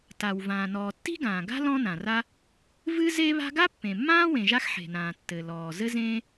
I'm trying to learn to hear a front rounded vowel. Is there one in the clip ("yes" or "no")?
no